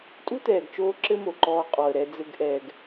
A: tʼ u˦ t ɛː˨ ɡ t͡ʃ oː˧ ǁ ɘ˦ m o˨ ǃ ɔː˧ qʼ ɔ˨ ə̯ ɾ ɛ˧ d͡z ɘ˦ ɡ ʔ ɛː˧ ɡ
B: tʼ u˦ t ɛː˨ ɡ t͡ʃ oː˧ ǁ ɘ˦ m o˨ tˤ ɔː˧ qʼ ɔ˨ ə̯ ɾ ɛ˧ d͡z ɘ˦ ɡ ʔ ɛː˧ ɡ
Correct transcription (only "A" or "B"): A